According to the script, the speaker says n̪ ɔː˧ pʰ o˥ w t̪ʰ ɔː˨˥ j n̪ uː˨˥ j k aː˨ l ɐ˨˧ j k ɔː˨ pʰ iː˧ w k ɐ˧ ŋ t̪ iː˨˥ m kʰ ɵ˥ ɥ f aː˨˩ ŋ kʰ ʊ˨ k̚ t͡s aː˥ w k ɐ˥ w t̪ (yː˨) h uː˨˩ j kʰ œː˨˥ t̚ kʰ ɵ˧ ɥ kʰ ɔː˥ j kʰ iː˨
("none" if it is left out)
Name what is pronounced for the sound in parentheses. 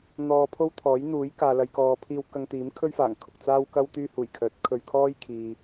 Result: yː˥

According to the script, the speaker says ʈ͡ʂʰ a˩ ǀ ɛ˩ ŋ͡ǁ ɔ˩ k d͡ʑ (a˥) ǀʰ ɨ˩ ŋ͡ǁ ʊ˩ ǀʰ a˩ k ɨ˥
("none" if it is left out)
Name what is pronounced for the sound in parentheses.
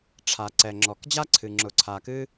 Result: a˥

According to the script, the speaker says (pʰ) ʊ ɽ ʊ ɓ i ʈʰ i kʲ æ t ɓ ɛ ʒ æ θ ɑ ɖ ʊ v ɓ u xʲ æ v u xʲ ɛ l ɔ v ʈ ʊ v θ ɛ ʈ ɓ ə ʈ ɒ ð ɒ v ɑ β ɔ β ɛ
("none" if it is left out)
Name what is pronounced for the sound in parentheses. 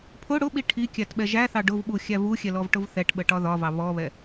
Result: pʰ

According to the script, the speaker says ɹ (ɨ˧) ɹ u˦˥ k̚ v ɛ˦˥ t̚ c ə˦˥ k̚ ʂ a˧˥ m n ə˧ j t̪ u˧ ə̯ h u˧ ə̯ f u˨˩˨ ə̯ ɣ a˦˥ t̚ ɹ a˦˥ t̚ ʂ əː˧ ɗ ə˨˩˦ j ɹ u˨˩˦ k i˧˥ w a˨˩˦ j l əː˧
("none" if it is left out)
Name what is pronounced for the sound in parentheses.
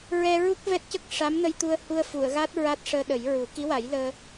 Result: ɛ˧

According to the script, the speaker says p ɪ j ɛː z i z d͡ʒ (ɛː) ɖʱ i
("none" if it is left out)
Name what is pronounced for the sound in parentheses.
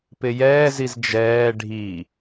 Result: ɛː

